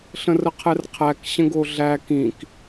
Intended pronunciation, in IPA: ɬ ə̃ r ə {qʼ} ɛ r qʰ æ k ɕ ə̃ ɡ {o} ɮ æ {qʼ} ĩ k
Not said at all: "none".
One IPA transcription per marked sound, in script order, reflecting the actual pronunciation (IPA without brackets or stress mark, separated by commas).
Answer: qʰ, o, k